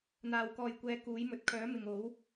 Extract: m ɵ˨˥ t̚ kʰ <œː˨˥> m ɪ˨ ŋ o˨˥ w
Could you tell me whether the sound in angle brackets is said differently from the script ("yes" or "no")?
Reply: no